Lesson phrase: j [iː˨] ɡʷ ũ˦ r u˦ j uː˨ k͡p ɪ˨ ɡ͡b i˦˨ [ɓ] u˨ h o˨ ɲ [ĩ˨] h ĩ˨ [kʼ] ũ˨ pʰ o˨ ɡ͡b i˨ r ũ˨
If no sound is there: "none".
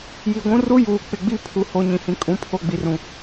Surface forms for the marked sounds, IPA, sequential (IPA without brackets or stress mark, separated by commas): i˨, pʰ, ĩ˨, kʼ